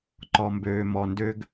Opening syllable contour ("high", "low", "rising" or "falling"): low